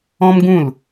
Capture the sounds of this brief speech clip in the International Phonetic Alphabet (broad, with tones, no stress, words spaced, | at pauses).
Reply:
ɔ̃˦mɡũ˦˨l